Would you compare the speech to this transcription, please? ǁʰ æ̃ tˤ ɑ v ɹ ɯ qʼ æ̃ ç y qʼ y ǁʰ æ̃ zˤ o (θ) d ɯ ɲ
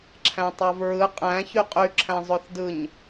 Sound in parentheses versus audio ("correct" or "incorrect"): correct